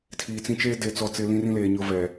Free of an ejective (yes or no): yes